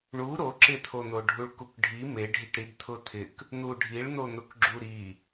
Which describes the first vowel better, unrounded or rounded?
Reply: rounded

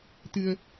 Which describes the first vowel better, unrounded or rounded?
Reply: unrounded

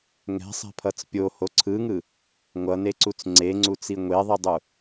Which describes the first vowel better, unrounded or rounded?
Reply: unrounded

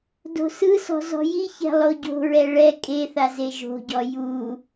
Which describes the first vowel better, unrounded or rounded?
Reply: rounded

